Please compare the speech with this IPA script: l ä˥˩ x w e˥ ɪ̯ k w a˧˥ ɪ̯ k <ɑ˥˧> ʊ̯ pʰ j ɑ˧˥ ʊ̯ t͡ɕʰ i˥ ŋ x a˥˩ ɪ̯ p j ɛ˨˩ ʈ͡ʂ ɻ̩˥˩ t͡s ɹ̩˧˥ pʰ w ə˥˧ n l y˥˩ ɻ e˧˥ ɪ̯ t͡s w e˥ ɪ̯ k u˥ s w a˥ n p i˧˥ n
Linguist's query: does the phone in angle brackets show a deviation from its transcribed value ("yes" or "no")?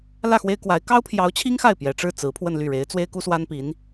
yes